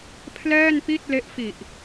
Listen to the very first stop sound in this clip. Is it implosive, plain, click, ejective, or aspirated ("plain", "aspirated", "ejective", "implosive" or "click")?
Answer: aspirated